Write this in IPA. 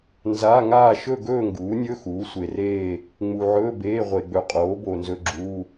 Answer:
n z a˧˥˧ ŋ aː˥˧ ʃ ɵ˥˧ ɡ ɵː˥˧ ŋ ɡ uː˩˥ nʲ ɵ˧˥˧ x uː˩˥ sʷ e˨ r eː˥˧ | ŋ͡m u˨ ʕ ɵː˧˥˧ b eː˧˥˧ ʁʷ e˨ ɡ͡b ɵ˨ qʼ oː˩˥ b oː˨ n z ɵ˧˥˧ ɡ͡ǁ uː˧˥˧

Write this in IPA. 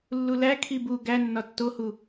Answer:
lː u l æ kʰ i b u ɡ æ nː ɒ tː o h u

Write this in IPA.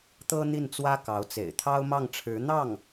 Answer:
t̪ ɤ˥ n̪ i˥˩ n t͡s w ä˥ k ɑ˧˥ ʊ̯ t͡s ḛ˨˩ ɪ̯ t̪ʰ ɑ˥ ʊ̯ m ɑ˥˩ ŋ ʈ͡ʂʰ ɻ̩˧˥ n̪ ɑ˥˩ ŋ

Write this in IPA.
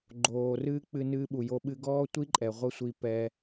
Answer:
ɡ͡ǃ oː˨ r ɨː˧ k͡p ɨ˧ n ɨː˧ ɓ u˨ j o˧ ɓ ɨ˧ ɡ ɔː˦ tʷ i˦ ǃʼ ɛ˨ ʁʷ ɐ˦ sʷ i˧ p ɛ˧

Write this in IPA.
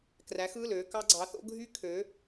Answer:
k r æ˨˥ x ɯː˩˧˩ l øː˧ k ɑ˦˥ ɡ͡ǀ ɑ˨˥ θ o̰˦˥ ɡʱ y˦˥ kʰ ø˨˥

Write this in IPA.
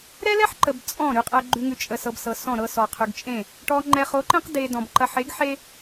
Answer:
ɾ ɛ˦ l ɛ˦ ħ ǃ ə˨ b t͡sʼ ɔ̃˦˨ ɾ y˨ qʼ ɛ˨ ɡ͡ǃ ʉ˨ ŋ ʉ˨ t͡ʃʼ ə˨ s ɤ˨ b s ɤ˨ s ɔ̃˦˨ ɾ ɤ˦ s ɔ˨ qʰ y˨ ɡ t͡ʃʼ ẽ˦˨ | ʈ ɔ˨ ŋ͡ǃ ɛ˨ χ o˨˦ ǃ ẽ˦ q d e˨ d ɔ̃˨ b ǃ ɐ˨ ħ e˨˦ ɡ ħ e˦

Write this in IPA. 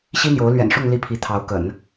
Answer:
ɕ i˥ n̪ j o˧˥ ʊ̯ l ɥ ɛ̰˨˩ n ʂ ʊ˥˧ ŋ l i˥˩ pʰ i˧˥ t̪ʰ ɑ˧˥ ʊ̯ k ə̰˨˩˦ n

